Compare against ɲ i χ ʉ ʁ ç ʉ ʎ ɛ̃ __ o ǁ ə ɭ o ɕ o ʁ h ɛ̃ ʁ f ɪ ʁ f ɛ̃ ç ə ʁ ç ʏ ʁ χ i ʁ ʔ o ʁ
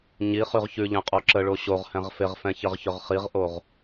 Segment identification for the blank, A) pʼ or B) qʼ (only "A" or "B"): B